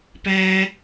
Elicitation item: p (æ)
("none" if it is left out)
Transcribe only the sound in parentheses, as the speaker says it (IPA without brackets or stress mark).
æ